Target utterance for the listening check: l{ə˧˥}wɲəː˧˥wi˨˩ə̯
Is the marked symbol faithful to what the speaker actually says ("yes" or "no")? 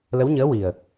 yes